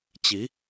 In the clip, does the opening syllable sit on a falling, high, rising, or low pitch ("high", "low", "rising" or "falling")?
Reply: rising